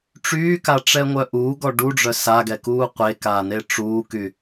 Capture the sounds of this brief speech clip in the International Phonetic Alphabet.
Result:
ʈ͡ʂ yː k a ʈ͡ʂ ɛ ŋʷ œ ʔ uː ɡ ɔ ɖ u ɖ͡ʐ œ s a ɡ ɛ k uː qʷ e k aː n e ʈ͡ʂ uː k y

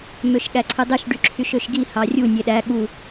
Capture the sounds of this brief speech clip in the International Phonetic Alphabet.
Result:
m ø ʃ ɠ æ ǀʰ ɯ dˤ i ʃ ɖ y ǁʰ y ʃ ø ʃ ɡ i h ɑ rʲ u nʲ e ɗ æ ɠ u

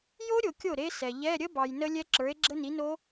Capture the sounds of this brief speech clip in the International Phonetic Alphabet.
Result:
j o˦˥ ɾʲ o˨ kʲ o˥˩ ɾ e˦˥ s ɛ˨ ʎ ɛ˧˥˧ ɾʲ ə˦˥ b ɑ˨ j n ə˦˥ lʲ ɛ˦˥ ǁ ə˞˨˥ e̯ ɡ͡ǁ ə˦˥ n i˨˥ n o˦˥

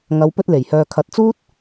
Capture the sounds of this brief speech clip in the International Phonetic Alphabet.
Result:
ŋ ɐ˨˧ w p ɵ˧ t̚ l e˨˩ j h œː˨ kʰ ɐ˨ t̚ t͡s uː˥ t̚

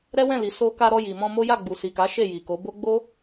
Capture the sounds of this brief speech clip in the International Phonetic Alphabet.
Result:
ɾ ɛ˦ w ɛ̃˦˨ l i˨ s o˧ k a˧ ɾ ɔ˧ j i˨ m ɔ̃˧ m o˦ j a˦˨ ɡ͡b u˨ s i˨ k a˨˦ ʃ e˦˨ j i˨ k o˨˦ b o˦ ɡ͡b o˦

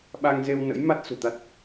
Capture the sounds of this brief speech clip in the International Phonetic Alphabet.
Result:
ɓ a˧ ŋ z e˧ w n ə̰˧˥ j m a˦˥ t̚ s ṳ˨˩ t̪ a˦˥ t̚

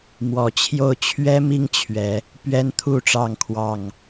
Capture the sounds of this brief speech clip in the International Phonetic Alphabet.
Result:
m w ɔ˨˦ t͡ɕʰ j o˥˨ ʊ̯ t͡ɕʰ ɥ ɛ˦ m i˦ ŋ t͡ɕʰ ɥ ɛ˨˦ | p ɥ ɛ˦ n t̪ʰ u˥˨ ʈ͡ʂ ɑ˥˨ ŋ kʰ w ɑ˥˨ ŋ

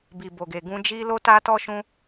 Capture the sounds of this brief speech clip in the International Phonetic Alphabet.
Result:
b i˨ b o˨ ɡ e˨ ɡ ũ˧ d͡ʒ i˦ l o˦ t a˦ t ɔ˦ ʃ ũ˦

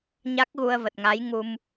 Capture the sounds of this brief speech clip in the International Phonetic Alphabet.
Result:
ɲ a˦˥ k̚ ɣ u˧ ə̯ v ə˨˩ t̚ ŋ a˨˦ j ŋ u˧ m

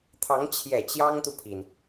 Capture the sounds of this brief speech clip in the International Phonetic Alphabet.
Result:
t̪ʰ ɑ˧˥ ŋ t͡ɕʰ j ɛ˨˩ t͡ɕ j ɑ˥ ŋ t̪ u˨ pʰ i˩ n

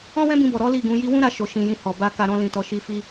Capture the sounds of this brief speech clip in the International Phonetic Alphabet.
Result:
ɔ̃˦ w ɛ̃˦ b ĩ˧ b ɔ˨ ɾ ɔ˨˦ l i˦˨ ɡ ũ˨˦ j i˦ w ũ˦ ɾ a˧ ʃ o˨ ʃ ĩ˨ j ĩ˧ h ɔ˨ b a˧ k a˧ ɾ ɔ̃˧ l ĩ˨ t ɔ˨ ʃ i˧ f i˧

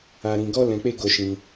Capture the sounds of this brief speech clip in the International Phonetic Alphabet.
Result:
a˧ ɾ ĩ˧ ɡ ɔ˦ l ɛ̃˧ k͡p e˦ ɡ o˧ ʃ ĩ˧

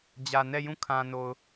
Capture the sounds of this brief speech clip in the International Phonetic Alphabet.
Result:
d͡ʑ ä˨ n ɛ˦˨ j ũ˦˨ kʰ ã˨ n o˨ ʊ̯

